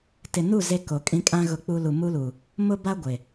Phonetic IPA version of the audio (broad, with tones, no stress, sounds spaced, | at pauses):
t ɪ˨ n u˦˨ z e˦ k o˨ kʼ ĩ˦ kʼ ã˦ ɣ ʊ˦ k͡p u˦ l u˨ m u˦ l u˨ | m ʊ˦ b a˦ ɡʷ ɪ˨